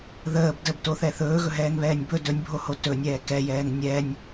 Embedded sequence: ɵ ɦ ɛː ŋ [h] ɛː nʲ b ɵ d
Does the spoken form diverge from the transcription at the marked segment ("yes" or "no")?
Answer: yes